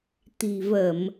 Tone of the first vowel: low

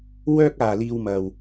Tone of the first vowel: high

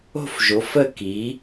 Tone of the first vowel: falling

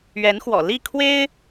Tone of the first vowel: rising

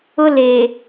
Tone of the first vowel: high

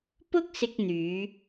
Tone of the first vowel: high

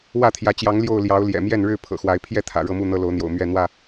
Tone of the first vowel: falling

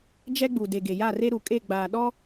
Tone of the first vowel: high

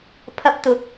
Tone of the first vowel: high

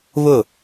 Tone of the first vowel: falling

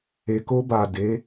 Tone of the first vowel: low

